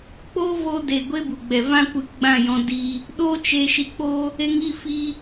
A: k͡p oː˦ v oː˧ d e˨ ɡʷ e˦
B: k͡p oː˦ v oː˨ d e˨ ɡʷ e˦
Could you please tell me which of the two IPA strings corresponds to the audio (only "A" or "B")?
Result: A